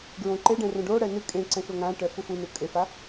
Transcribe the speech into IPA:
ɡɹõǃeɖɛ̃ rõɖoɽɛ nɨ kʼẽ ǀɛ̃ʃoŋãʈɛ fufunu kʼefa

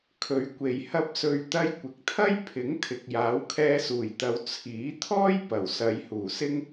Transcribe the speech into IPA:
kʰɵ˨˧ɥkʷe˨j hɐ˧p̚sɵ˨ɥt̪ɐ˧j kʷɪ˨k̚t̪ʰɐ˥j pʰɪ˨˥ŋt̪ʰɪ˨k̚ jaː˨˥wkʰɛː˧suː˨˩jt̪ɐ˨˧w t͡sʰiː˨˥t̪ʰɔː˥jpɐ˨˩w sɐ˨˧jhuː˨˩sɪ˥ŋ

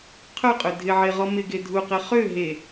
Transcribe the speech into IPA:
qʰœqʼø dʱɪʕeʁɔ mɪɡe dʱuqe χø ɦe

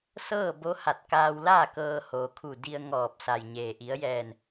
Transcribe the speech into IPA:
sɤː˥˨ bo˧˥ha˧˩t̚kaː˧wlaː˥˨ kɤː˧hoː˩kʰu˧˩ di˧ə̯ŋɔː˧˩p̚sa˩jɲeː˩ ʔi˩˧ə̯jɛː˧˩n

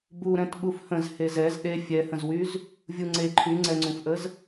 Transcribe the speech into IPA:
buɾɛ̃t ɓufhə̃z hezɛz ɗe fʲɛhə̃zwyz | vʲuŋ͡ǀe ǃʰyŋ͡ǀɛŋ͡ǀũfʔəz

